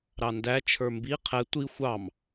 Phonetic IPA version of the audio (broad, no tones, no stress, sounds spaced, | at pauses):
ɾ ɑ n d æ t͡ʃʰ ə˞ m b i qʰ ɛ tʷ i xʷ ɑ m